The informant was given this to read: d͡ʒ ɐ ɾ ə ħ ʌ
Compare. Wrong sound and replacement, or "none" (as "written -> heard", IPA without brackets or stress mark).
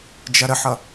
none